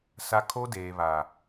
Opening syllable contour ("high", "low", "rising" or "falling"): high